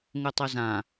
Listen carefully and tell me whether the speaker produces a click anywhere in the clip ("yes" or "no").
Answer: no